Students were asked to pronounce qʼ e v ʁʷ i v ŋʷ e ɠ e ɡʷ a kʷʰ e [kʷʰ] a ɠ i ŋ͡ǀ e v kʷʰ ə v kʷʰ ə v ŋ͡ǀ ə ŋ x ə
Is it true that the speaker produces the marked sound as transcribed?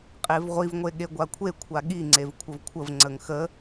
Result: yes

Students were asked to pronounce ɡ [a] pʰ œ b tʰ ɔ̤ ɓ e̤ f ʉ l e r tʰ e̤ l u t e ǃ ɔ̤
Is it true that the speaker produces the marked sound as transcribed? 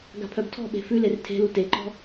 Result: no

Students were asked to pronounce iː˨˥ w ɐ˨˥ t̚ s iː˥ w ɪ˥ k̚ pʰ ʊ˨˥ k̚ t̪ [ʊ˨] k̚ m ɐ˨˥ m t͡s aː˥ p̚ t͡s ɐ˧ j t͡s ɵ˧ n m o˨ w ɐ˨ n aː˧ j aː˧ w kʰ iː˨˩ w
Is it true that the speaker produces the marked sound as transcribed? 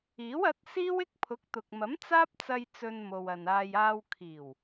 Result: yes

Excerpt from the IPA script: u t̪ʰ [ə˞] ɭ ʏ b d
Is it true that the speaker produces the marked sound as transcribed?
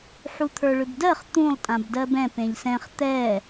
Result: yes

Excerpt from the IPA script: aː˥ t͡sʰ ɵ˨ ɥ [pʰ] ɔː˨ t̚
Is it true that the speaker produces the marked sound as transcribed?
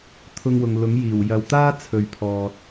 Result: yes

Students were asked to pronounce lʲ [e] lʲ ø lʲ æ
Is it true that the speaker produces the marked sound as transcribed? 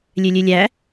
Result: no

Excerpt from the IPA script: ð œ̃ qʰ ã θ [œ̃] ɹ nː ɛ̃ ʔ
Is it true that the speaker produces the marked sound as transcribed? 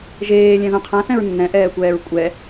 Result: no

